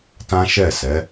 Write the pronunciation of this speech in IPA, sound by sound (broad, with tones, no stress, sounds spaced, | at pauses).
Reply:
t ã˦ ʃ ɛ˦˨ s ɛ˨˦